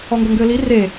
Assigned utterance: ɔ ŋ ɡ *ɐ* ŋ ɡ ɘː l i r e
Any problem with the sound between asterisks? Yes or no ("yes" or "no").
no